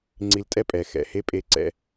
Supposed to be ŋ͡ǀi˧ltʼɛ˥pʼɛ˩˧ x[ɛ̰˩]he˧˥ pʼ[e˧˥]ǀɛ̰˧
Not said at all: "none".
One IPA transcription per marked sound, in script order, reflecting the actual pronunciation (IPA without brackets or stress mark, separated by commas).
ɛ̰˩, e˧˥